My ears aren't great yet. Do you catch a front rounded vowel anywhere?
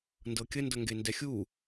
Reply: no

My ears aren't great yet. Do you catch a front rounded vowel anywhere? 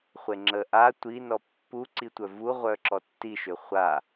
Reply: yes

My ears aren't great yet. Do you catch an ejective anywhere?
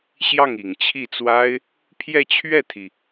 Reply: no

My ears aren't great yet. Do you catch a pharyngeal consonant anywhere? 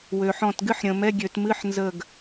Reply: yes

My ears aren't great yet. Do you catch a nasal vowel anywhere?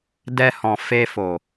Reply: yes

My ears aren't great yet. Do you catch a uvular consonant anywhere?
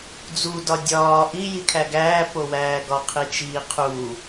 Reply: yes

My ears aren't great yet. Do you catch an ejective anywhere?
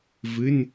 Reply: no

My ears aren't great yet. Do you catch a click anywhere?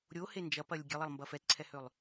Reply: yes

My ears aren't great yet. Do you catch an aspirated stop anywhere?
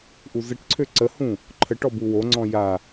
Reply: yes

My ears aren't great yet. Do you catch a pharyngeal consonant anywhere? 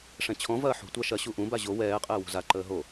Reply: yes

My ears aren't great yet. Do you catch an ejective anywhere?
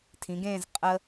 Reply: yes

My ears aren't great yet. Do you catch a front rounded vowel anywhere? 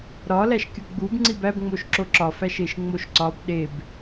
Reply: no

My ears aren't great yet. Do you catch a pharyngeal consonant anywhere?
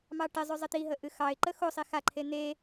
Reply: no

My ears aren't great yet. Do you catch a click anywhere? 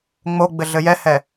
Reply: no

